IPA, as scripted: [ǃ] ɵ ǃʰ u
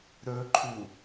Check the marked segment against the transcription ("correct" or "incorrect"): incorrect